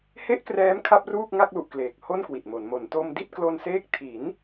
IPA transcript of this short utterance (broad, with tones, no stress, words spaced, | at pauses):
he˥˩ʔkrɛː˦˥m kʰa˥˩p̚ruː˥˩k̚ŋa˥˩k̚lu˨˩ʔ kleː˨˩k̚ho˥˩nkwi˨˩t̚mo˩˦n mo˩˦nto˧m di˥˩t̚ klo˧nseː˦˥k̚ tʰi˩˦n